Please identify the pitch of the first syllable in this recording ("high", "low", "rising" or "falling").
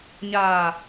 low